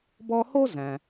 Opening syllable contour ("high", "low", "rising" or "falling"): high